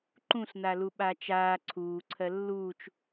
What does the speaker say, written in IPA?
ǃũɬnalu ɓaːt͡ʃaː ǀʰuːǀʰɜ lːuːt͡ʃ

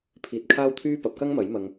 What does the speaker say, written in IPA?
pʰiː˧t̚kʰaː˥wt̪ʰyː˥ pɐ˨˥p̚kɐ˥ŋmɐ˨˥j mɐ˧ŋ

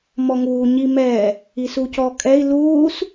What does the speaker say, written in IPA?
mɔŋuː ɲimɛː | isucɔːkʼɛi̯ luːs

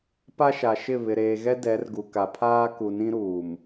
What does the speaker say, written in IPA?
pa˦ʃa˨ʃɪ˦˨ βɪ˨ɾeː˨ɣɛ˦ dɛ˨˦rɡu˨ka˨pʰaː˦ ku˨nĩ˦ɾuː˨m

